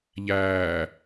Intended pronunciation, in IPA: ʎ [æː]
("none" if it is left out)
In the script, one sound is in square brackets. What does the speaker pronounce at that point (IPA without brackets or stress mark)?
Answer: æː